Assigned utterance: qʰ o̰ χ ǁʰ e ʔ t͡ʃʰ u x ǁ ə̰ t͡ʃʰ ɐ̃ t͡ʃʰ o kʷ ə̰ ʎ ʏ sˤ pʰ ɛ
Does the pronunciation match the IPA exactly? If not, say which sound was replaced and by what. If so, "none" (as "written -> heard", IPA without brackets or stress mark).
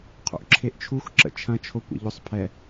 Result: χ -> ʔ